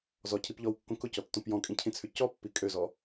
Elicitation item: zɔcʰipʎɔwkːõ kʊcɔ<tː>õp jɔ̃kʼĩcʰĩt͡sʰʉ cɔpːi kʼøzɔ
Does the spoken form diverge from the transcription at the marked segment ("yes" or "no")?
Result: no